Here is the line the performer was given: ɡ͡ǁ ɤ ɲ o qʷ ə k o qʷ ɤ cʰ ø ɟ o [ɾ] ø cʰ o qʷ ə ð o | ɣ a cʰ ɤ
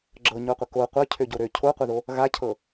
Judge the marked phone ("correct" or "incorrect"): correct